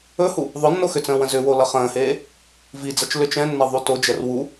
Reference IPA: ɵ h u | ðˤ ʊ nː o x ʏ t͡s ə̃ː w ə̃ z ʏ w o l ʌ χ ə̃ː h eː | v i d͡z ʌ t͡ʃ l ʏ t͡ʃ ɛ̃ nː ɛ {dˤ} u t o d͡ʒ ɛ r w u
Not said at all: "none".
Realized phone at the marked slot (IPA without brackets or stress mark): ðˤ